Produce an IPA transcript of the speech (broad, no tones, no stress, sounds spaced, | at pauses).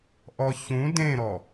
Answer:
ʔ ɔ ç ũ d ẽ ɾ ɔ